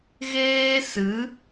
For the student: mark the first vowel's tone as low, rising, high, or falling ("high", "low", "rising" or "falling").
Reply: high